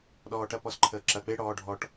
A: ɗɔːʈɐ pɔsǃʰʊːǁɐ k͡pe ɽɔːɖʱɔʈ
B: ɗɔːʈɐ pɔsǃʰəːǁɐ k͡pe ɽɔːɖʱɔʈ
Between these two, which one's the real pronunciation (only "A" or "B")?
B